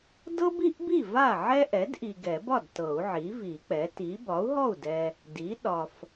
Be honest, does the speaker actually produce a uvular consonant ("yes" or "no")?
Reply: no